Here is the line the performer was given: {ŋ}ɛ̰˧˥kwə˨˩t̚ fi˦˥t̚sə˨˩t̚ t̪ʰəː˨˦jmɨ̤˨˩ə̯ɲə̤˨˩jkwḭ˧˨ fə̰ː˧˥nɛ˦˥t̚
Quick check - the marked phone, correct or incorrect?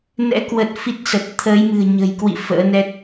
incorrect